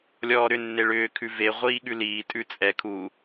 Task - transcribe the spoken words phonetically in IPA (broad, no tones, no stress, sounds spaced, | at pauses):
lʲ ɔː ɾ ʏ nː e ɭ ʏː kʰ ʉ v e ʁʷ iː ɠ ʉ l iː tʼ ʉ t͡sʼ ɛ kʰ u